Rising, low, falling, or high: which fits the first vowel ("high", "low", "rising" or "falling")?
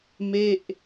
falling